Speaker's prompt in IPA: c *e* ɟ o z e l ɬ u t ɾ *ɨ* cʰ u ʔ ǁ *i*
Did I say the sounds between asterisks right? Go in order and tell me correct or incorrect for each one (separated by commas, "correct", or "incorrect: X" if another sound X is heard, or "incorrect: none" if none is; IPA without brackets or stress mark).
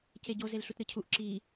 correct, correct, correct